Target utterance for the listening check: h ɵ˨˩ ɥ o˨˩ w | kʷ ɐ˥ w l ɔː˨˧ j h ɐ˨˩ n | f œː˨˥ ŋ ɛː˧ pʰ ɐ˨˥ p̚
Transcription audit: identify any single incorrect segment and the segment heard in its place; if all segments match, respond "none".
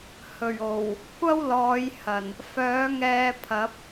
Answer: none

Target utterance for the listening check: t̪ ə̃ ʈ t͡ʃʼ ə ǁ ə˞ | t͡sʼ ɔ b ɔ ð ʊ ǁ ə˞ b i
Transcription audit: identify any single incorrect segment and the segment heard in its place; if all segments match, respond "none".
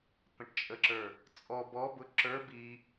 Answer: ð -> b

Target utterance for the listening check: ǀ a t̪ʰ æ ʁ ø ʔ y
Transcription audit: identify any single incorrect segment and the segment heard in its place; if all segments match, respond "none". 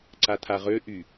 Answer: æ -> a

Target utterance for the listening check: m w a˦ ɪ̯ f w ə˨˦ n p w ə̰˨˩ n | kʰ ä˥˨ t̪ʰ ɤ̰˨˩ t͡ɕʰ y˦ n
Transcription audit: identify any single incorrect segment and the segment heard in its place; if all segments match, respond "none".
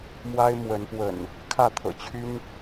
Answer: f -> m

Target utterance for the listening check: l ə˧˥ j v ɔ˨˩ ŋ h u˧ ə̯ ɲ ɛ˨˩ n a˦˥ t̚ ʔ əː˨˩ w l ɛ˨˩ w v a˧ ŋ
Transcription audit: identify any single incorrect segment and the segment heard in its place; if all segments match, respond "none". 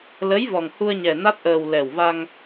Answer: none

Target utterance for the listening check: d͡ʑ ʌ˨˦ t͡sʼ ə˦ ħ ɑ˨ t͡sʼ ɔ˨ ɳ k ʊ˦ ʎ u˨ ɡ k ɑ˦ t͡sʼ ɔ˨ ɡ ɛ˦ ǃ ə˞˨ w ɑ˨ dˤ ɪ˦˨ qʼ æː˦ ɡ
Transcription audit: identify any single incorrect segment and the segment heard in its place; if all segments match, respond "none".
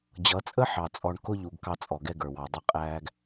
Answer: ǃ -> ɡ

